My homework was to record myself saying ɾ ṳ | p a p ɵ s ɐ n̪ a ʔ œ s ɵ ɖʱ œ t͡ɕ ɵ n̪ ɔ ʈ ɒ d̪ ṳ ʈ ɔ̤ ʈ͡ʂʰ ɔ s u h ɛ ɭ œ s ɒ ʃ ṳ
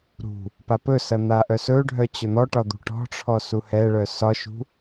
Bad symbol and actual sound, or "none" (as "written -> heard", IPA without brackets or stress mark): none